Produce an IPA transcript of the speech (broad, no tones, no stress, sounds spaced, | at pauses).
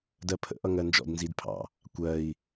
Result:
d ɜ pʰ ə̰ ʔ ʌ ŋ ɜ n d͡ʒ ɔ̰ d n z i d pʰ ɑ̰ | kʷ ɜ i̯